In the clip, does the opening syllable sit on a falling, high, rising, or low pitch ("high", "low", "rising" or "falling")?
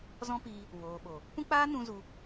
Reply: high